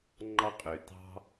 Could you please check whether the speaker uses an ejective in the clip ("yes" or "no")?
yes